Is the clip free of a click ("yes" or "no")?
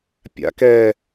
yes